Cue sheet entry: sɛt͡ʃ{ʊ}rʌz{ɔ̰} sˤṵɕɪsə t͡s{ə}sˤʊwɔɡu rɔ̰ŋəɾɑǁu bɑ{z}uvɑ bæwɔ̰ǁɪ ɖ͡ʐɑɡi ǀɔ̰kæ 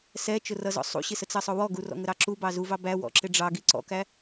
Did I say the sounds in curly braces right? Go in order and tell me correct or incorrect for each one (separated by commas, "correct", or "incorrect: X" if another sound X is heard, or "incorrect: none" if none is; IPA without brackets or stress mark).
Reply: correct, correct, incorrect: ʌ, correct